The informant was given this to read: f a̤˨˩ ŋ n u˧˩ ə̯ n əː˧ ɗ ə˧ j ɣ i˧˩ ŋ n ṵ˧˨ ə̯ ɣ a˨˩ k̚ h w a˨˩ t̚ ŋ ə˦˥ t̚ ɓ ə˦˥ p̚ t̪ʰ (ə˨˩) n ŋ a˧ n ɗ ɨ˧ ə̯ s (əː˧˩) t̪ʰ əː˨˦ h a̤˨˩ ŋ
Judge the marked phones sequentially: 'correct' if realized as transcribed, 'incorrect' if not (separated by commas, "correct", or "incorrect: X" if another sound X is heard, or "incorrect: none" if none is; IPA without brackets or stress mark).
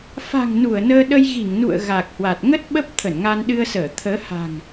incorrect: ə˧˩, correct